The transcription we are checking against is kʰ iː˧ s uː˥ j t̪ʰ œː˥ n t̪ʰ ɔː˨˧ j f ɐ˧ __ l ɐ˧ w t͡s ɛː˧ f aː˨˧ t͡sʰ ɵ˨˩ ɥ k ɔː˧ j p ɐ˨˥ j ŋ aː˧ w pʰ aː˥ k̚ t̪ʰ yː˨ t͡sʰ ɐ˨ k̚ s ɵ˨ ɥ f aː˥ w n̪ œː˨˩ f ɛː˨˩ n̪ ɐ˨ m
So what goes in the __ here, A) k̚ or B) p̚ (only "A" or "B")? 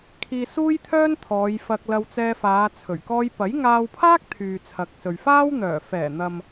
A